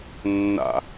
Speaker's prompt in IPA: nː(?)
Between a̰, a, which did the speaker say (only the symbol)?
a̰